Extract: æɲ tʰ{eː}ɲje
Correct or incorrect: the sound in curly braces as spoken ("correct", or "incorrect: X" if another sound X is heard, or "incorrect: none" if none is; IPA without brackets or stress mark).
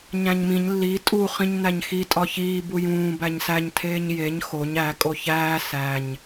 correct